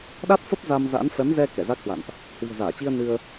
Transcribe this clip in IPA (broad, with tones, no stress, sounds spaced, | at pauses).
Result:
ɗ a˦˥ t̚ f ə˦˥ p̚ z a˧ m z a̰˧˥ n f ɛ˨˦ m z ɛ˧ k ɛ˧˩ z a˦˥ k̚ h w a̰˧˨ n ʔ | h w i̤˨˩ ə̯ z aː˧˩ t͡ɕ i˧ ə̯ n ɨ˧ ə̯